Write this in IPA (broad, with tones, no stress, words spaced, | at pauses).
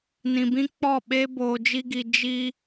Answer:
nĩ˧bĩ˦ k͡pɔ˦˨ɓe˦ boː˧d͡ʒi˦ɡi˧ d͡ʒi˦